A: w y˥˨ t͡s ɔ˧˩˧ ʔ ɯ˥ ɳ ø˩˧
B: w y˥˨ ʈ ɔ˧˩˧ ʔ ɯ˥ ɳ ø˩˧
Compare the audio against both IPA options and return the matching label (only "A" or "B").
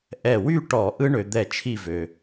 B